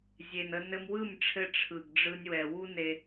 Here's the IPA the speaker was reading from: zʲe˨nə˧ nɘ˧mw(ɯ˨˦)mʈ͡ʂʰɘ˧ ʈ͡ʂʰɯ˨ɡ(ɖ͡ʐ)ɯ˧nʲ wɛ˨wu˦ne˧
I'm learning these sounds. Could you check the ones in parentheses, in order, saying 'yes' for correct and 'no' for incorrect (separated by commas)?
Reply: no, yes